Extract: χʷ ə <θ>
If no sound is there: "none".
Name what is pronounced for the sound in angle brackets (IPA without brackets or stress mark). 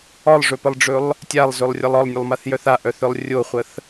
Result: θ